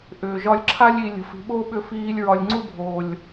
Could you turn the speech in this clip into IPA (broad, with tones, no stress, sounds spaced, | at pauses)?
ʔ ʏː˨ ʒ ɒ˧ lʲ ǁʰ a˦ lʲ i˧ lʲ ə̤˨ f i̤˨ ɓ oː˦ ɓ ʏ˧ f iː˧ lʲ ɹ ɒ˧ lʲ ŋ͡ǀ u˦ bʱ oː˨ lʲ